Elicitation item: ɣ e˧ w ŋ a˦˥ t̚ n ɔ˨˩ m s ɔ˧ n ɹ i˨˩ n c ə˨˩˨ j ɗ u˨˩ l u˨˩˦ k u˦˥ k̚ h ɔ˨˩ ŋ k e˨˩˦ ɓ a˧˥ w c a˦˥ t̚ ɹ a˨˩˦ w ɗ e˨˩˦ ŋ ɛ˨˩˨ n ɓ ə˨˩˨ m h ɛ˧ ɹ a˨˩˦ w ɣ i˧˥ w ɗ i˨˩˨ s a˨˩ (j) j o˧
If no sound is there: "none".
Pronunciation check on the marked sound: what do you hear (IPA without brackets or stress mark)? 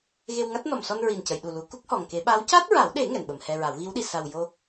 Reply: w